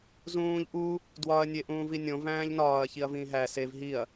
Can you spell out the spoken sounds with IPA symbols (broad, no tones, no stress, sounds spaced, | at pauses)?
z ũː ʎ ʔ u | d w ɒ ɐ̯ nʲ e ʔ ũː v i nʲ õ v æ̃ː ʎ n ɒː ɐ̯ ç i ɐ̯ v ĩː ɦ æ s e v ɦ i ɐ̯